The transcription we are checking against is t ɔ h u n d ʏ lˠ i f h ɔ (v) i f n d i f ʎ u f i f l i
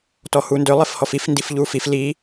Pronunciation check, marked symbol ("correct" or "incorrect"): incorrect